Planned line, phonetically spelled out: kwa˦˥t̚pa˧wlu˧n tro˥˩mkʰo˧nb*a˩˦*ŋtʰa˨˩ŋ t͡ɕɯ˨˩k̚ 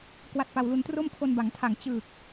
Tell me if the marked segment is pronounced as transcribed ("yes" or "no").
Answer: yes